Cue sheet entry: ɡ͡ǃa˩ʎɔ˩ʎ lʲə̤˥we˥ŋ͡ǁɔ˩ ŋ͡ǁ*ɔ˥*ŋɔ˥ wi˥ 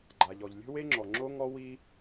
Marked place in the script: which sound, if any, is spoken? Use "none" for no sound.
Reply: o˥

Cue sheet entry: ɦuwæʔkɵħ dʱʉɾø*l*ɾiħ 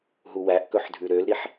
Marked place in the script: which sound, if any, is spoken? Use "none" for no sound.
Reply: l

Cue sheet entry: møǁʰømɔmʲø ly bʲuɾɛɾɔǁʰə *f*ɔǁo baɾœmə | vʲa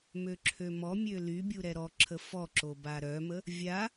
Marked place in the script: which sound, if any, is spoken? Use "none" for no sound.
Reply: f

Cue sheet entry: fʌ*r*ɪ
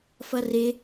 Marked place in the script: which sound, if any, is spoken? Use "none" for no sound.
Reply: r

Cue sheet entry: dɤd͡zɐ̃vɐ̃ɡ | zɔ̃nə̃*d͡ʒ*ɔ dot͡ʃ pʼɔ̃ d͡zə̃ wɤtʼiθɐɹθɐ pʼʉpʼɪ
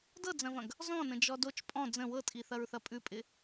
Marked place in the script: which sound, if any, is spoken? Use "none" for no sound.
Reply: d͡ʒ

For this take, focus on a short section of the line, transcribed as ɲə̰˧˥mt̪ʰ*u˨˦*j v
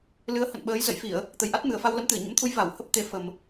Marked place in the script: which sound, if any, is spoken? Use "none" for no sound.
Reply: u˨˦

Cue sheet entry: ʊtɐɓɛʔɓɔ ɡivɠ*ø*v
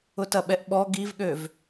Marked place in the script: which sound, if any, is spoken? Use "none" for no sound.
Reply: ø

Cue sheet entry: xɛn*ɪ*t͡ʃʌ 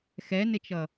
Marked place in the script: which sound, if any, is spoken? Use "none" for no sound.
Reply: ɪ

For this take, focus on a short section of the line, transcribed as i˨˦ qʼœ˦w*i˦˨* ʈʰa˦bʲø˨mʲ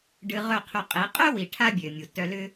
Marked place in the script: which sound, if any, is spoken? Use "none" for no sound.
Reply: i˨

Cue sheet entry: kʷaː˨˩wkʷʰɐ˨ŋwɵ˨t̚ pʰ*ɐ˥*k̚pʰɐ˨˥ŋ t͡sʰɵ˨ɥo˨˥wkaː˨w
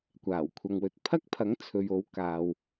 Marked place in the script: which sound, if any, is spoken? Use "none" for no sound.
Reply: ɐ˥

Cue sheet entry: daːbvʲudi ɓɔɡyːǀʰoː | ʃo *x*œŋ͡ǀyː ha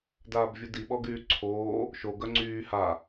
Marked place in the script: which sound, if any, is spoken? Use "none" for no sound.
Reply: ɡ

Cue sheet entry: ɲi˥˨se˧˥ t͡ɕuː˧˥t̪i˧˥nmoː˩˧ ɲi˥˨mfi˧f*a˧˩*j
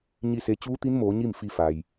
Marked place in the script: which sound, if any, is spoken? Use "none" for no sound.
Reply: a˩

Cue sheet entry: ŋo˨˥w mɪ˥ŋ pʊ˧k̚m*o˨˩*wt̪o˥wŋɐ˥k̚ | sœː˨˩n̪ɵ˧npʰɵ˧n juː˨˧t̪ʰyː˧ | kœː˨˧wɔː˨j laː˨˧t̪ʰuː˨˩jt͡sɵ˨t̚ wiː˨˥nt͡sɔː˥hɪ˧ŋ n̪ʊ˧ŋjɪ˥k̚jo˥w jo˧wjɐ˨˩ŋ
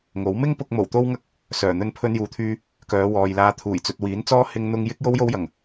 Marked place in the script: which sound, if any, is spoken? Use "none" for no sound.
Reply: o˨˩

